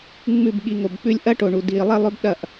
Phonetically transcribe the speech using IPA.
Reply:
ŋ͡mʉ˦˨bɠi˧ ŋo˨bk͡pʉ˧lʲ ʔɐ˦ʈo˨ɳu˨ di˨ lˠe˦lˠɵ˦bɗɐ˦˨ʔ

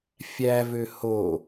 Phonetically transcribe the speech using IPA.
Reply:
fʲævø ho

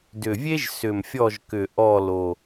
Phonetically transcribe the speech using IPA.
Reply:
dʏ˨˩vʲe˥ʒ sʏ˨˩mfʲɔ˦˨ʒkʏ˨˩ ʔɔ˦˨ lo˨˩

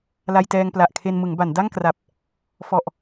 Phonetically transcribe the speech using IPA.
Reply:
la˧jtɛː˧ŋpla˨˩ʔkʰe˧n mɯ˩˦ŋba˩˦nda˥˩ŋkra˨˩p̚ | fɔ˨˩ʔ

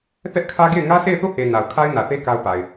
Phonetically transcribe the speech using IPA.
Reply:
θɛ˦ʔkʰä˦ɡe˦˨ɪ̯ ŋä˦se˦˨ɪ̯θo˦˨he˨ na˨ʊ̯kʰa˦ɪ̯ nä˨θe˦ ka˦ʊ̯pa˨ɪ̯

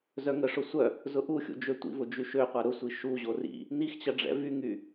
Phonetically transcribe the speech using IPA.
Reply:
zœŋəʂʊ sʷœ | zʊʔuxʲṵ d͡ʒøtʷḭvʊ d͡ʒyʃøqʷɐ ɾʊsʷi ʃuʑo rḭ | nixt͡ɕɐ ɖ͡ʐɛ̰vyŋy

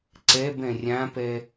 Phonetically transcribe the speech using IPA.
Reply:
ǀɛbɛ̃ rʲãpɛ

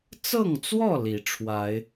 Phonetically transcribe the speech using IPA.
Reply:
t͡sɤ˥˨ŋt͡swɔ˥˨ li˨˦ ʈ͡ʂʰwa˨˦ɪ̯

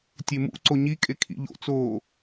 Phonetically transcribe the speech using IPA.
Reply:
tʲemṵǀo ɲikʼe kʰḭʎo̰t͡soː

